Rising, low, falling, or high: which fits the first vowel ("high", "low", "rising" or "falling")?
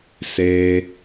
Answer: low